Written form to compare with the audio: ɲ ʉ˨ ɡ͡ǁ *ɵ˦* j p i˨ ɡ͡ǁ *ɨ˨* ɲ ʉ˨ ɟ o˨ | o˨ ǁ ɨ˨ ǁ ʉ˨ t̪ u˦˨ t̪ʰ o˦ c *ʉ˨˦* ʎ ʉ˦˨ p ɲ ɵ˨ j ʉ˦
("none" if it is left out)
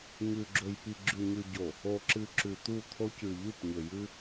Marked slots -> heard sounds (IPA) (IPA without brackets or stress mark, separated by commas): ɵ˨, ʉ˨, ʉ˨